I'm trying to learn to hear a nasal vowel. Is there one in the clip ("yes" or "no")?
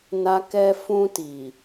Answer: yes